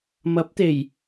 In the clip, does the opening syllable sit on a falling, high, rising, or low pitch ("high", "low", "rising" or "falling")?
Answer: rising